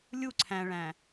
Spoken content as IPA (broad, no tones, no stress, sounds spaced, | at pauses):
lʲ u ǀʰ æ̃ ɭ æ̃